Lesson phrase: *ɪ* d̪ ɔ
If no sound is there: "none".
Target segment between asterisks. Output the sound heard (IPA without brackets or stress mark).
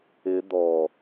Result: ɪ